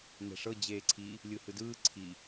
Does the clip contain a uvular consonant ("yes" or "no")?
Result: no